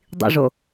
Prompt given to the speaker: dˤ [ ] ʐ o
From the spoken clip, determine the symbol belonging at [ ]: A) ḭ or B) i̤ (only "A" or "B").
A